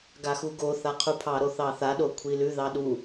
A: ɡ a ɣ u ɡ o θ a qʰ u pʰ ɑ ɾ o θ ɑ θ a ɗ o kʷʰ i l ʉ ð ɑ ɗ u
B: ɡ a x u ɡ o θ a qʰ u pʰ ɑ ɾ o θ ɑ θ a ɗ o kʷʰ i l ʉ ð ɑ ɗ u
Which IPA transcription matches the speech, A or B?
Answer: B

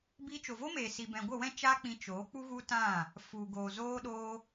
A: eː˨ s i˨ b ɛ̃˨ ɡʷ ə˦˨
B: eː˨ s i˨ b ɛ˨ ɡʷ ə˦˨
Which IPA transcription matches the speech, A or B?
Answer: A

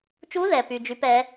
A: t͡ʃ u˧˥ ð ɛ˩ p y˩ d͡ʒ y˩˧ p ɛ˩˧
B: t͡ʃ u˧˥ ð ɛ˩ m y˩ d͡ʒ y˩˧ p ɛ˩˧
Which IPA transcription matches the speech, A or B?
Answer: A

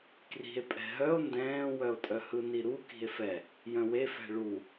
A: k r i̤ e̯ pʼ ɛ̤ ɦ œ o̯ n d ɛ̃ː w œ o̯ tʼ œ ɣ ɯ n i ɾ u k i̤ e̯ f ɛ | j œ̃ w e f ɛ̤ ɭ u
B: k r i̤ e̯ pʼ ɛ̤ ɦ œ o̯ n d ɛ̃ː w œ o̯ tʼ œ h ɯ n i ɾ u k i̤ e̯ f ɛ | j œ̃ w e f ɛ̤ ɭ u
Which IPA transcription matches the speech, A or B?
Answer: B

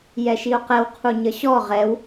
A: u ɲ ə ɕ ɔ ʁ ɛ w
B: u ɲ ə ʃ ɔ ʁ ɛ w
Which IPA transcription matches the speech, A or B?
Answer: A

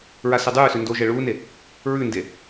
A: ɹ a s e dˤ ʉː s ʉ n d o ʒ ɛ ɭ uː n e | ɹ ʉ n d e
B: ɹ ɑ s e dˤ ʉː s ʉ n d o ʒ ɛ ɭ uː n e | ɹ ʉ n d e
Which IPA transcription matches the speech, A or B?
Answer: A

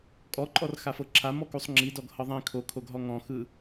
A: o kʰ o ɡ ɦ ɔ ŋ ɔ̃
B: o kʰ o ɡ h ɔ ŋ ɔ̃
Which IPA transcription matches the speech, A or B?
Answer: A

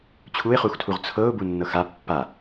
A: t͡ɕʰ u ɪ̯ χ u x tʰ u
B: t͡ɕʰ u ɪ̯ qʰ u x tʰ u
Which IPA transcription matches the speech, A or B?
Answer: A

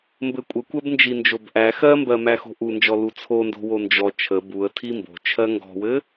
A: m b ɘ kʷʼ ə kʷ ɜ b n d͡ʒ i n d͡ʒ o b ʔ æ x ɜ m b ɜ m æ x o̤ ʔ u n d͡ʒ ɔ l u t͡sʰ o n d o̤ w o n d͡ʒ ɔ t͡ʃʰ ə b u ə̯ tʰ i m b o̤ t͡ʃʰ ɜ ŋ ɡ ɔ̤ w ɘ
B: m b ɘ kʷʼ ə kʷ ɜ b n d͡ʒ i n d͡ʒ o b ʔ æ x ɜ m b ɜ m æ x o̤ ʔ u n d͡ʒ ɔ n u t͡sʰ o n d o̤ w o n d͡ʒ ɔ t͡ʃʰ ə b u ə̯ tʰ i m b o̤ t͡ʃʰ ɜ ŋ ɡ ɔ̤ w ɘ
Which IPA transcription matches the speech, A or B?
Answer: A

